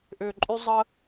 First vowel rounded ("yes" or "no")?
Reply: yes